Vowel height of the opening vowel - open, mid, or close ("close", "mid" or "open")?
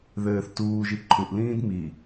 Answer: mid